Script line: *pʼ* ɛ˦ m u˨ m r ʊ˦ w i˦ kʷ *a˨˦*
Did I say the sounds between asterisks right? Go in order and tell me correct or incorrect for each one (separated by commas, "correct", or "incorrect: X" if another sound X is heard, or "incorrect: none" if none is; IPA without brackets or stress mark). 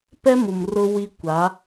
incorrect: p, correct